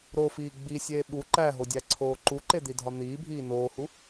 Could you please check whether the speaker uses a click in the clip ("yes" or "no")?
yes